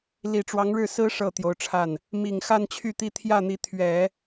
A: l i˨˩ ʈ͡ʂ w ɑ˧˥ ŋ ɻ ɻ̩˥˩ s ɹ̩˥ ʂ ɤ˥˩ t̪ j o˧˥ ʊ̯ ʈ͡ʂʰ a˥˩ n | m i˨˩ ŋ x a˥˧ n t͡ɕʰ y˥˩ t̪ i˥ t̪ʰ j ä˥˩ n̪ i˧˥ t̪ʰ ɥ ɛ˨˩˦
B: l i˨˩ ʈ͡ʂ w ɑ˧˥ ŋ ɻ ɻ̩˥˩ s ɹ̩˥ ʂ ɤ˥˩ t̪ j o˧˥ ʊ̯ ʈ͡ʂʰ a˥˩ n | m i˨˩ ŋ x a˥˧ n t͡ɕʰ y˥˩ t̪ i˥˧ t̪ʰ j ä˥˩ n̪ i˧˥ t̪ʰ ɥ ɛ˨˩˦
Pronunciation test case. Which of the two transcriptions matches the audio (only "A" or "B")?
A